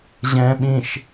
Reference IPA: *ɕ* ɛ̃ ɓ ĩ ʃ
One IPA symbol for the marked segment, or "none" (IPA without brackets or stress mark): ʑ